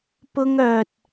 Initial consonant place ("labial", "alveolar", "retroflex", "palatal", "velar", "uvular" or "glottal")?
labial